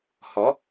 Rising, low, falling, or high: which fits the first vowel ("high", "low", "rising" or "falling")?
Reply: rising